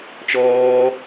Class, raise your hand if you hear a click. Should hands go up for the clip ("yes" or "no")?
no